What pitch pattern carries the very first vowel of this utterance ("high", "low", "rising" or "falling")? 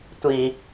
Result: low